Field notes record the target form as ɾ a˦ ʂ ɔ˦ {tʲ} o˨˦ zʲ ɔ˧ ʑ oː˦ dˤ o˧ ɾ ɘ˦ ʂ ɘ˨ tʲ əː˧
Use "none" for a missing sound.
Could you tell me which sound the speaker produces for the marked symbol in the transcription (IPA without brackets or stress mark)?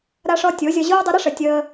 tʲ